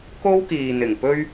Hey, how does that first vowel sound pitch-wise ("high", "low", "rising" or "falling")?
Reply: high